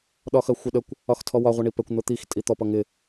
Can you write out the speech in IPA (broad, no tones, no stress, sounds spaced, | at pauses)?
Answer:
ɗ ɒ x ɜ xʷ ɪ ɗ ə kʷ | ɒ x tʰ ɔ w ɒ ʁʷ ʌ ɳ i p ɛ kʷ n̪ ʊ t̪ i x tʼ i t̪ ɔ p ʌ ŋ ɪ